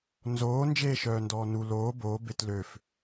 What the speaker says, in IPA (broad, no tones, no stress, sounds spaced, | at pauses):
n z oː n d͡ʒ eː ʃ œː n d ɔː n u l oː b oː b e t l ø f